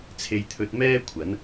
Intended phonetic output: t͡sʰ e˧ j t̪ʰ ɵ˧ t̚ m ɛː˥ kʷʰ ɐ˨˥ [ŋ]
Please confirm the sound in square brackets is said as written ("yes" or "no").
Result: no